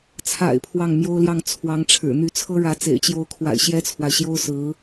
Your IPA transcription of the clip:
t͡sʰa̰˨˩ɪ̯ pʰwɑ˥˩ŋmjo˥ʊ̯ljɑ˥˩ŋ t͡sʰwɑ˧˥ŋʈ͡ʂʰɻ̩˨˩ n̪y˧˥t͡sʰɤ˥ɻä˧˥t͡sḛ˨˩ɪ̯ t͡ɕjo˧˥ʊ̯kʰwa̰˨˩ɪ̯ ɕjɛ˥t͡sʰwa˨ɪ̯ɕjo˥ʊ̯ sɹ̩˧˥

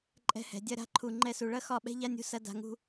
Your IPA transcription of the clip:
ǃʼɛ̤˧hɛ̤˨ dʲɐ˧ɾa̤˨˦ǃʰu˨ ŋ͡ǃɛ˧su˨ɭɐ˦ xɒ˦˨ɓɛ̤˦ʎa˦nʲṳ˧ sɐ˦da̤˧ŋṳ˦

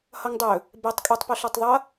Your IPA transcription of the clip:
hʌŋdˤɵ | bɛtˤ kʼetˤpoɬɤtˤ ðˤʌ

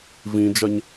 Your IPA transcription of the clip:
vĩd͡ʒɐɲ

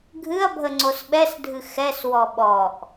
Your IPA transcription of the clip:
ɡʱɨɐ̯bʱə ŋ͡ǀosɓɛsdʱɨ xɛswɔ ɓɔʔ

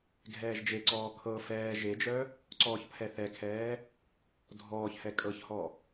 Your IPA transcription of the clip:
ɡʱɛːʒd͡ʒeǀɔː kʰɤ fɛː ʒed͡ʒœ | ǀɔːçpʰɛθɛkʰɛː | dʱɔːçhɛ kʼɤçhɔ

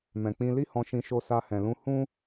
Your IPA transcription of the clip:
mɛ̃˨k͡pĩ˧ li˦hɔ̃˧ʃĩ˧ ʃo˧sa˧ hɛ̃˨lũ˧ hũ˦

